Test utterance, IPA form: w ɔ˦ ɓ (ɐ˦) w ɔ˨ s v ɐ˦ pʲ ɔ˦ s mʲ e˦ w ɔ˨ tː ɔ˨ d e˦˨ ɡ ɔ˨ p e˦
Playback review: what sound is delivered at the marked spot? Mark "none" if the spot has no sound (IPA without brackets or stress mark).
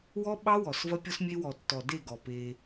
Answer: ɑ˦